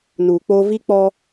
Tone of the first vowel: low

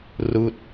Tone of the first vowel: falling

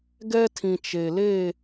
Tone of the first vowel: high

